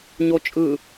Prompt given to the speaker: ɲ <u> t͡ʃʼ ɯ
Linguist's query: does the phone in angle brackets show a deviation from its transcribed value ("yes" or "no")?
yes